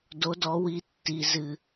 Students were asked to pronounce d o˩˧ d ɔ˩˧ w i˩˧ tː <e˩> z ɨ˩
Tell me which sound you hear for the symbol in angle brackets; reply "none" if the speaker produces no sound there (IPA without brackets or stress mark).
i˩